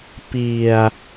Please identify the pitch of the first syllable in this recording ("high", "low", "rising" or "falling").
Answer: low